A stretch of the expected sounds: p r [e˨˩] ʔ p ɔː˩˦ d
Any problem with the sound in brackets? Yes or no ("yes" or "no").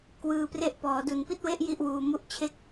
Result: yes